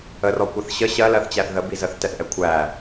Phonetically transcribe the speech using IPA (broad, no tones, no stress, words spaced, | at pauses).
ərɔ kʷʌθɕə ɕɜlɜθt͡ɕæθ ðə bizəθtɛθʔɛ kʷʰæ